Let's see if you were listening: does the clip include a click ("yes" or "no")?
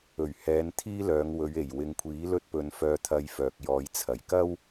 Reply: no